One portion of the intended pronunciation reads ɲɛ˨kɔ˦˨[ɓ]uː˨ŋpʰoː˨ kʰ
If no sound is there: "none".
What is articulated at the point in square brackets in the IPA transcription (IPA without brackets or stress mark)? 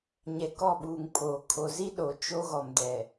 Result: ɓ